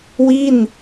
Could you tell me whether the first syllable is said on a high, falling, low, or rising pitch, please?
falling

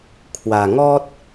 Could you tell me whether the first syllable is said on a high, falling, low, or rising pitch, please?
low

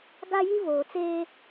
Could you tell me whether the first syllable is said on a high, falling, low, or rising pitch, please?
high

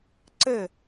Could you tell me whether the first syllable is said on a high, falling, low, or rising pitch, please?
falling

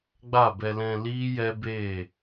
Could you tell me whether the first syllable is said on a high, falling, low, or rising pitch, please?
falling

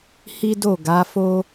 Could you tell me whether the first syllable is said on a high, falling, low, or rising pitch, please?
high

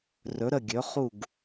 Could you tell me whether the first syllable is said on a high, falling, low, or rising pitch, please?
rising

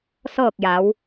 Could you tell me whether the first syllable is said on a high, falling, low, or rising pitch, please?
falling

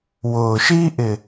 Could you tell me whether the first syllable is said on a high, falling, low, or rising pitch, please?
low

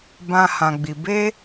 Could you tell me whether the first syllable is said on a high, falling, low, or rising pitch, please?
high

